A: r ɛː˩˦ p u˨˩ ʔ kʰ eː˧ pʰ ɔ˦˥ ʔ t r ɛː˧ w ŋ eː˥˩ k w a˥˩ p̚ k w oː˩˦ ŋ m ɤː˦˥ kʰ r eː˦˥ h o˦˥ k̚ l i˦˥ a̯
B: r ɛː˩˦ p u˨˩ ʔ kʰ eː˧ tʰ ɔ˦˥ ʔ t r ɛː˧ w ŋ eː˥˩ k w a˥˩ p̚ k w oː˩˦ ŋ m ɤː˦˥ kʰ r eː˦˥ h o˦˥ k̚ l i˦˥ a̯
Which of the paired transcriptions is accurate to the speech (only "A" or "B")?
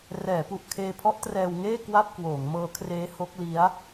A